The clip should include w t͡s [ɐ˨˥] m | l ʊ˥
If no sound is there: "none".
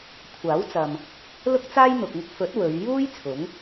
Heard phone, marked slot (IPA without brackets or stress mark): ɐ˨